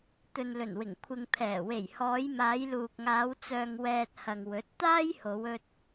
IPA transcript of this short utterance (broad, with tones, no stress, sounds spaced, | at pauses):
t̪ ɵ˨ n l ɵ˨˩ n w ɪ˨˩ ŋ kʷʰ ɪ˨ ŋ pʰ ɛː˨˩ w e˨˩ j h ɔː˨˧ j m aː˨˧ j l uː˨ k̚ ŋ aː˨˧ w t͡s œː˨ ŋ w ɛː˨ t̚ h ɐ˨ ŋ w ɵ˨˥ t̚ t̪ aː˥ j h o˨˧ w ɵ˧ t̚